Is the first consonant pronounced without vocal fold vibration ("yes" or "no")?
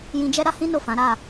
no